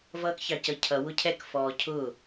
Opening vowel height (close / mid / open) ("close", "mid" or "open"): mid